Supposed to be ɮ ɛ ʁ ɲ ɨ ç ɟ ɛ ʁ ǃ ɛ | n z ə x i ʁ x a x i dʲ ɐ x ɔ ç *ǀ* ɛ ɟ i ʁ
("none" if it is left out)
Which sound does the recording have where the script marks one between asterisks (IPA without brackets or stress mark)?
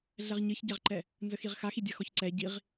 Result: ǀ